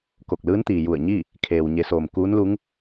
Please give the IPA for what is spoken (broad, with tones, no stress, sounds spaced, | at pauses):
k o˧˩ k̚ l ɯː˧˥ n t̪ iː˩ j u˧˩ ə̯ ɲ i˥˨ | kʰ eː˩ w ɲ e˩˧ s oː˩ m k uː˧˥ n l u˧˥ ŋ